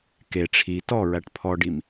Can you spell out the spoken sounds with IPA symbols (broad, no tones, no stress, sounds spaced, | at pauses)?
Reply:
k e ʈ͡ʂʰ i t ɔ ɹ æ ʈ pʰ ɔ ɖ i m